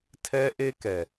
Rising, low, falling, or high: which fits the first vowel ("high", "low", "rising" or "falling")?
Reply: high